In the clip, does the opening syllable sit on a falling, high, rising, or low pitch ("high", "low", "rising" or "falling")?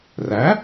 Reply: rising